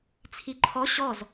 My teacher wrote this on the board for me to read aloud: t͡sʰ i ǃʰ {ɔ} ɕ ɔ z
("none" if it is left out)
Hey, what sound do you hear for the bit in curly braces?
ɔ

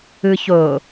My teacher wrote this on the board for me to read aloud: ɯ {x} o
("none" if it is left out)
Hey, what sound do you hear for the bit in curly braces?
ç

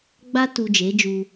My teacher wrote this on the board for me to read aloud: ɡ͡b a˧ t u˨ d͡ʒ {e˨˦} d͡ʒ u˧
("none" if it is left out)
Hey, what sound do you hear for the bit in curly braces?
e˨˦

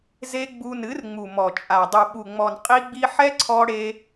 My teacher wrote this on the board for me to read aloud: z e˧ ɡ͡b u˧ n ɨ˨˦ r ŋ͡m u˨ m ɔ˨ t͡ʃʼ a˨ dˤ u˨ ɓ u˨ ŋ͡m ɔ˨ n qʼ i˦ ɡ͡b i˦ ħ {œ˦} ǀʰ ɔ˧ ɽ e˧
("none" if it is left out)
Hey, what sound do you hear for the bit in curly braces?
ɛ˦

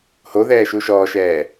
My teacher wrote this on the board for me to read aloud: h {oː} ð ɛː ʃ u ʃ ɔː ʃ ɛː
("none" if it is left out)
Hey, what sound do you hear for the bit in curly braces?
o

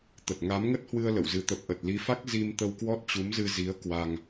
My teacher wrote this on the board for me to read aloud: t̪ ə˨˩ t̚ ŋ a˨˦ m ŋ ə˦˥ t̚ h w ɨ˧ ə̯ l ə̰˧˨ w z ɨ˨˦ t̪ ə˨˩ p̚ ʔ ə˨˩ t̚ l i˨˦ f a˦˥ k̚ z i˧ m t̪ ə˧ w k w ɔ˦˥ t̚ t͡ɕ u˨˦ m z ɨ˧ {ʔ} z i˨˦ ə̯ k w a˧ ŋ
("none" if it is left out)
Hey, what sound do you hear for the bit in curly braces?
none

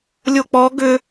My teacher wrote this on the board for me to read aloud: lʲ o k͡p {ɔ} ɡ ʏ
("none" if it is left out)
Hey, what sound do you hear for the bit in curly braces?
ɔ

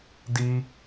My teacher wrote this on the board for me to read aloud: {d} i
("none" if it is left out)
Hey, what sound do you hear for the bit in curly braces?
d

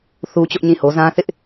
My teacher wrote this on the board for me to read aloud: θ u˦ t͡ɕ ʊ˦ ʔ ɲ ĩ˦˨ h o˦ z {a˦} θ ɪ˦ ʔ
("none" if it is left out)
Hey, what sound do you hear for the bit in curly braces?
ã˦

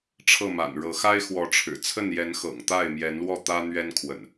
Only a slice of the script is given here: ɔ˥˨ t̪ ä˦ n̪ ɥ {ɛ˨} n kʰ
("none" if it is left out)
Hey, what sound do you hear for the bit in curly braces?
ɛ˦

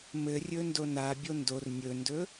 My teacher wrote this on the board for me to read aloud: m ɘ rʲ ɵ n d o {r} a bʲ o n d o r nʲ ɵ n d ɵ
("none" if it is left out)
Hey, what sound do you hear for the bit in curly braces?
n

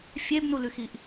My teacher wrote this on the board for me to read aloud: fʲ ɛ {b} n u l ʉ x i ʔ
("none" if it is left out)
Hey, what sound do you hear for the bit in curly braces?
b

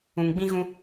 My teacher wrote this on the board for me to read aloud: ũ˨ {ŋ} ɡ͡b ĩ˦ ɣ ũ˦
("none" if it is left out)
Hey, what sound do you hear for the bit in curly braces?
ŋ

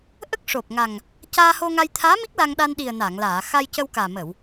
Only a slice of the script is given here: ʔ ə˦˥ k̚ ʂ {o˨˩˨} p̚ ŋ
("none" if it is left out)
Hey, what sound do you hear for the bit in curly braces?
o˨˩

